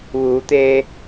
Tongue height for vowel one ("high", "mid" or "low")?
high